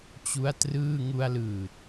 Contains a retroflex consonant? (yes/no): no